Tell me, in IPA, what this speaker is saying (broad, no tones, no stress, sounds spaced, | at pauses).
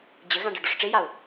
d͡ʑ ɘ ɣ ã ɖ ɤ ɖ ɔ ʂ ʈ͡ʂ e j a ʊ̯